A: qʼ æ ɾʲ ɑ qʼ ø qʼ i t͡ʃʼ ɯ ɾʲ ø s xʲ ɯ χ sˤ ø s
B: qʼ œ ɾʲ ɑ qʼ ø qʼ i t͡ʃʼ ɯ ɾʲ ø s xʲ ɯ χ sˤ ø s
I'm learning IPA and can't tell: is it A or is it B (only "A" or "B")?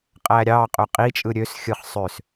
A